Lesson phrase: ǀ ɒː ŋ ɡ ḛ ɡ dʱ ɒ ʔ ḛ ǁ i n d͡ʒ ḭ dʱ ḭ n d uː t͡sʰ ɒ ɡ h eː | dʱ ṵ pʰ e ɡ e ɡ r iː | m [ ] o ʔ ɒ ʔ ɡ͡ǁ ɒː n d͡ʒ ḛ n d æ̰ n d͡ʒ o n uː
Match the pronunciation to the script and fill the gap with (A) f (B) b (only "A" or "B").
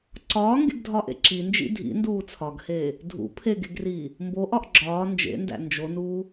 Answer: B